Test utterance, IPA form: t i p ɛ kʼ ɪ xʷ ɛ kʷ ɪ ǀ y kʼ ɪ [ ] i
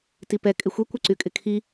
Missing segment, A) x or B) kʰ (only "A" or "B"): B